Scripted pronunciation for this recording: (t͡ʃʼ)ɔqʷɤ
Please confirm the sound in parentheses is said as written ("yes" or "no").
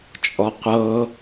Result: yes